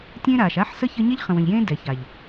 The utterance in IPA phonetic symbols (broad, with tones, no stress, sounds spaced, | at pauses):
tʲ ẽː˦ ɾ aː˨ ʃ a˦ ħ s ə˦ ç ə˦ ɲ ɛ˦ ʎ χ ə̃˨ w ə̃˨ ʎ j ẽː˦ d ɛ˨ ç a˨ ʎ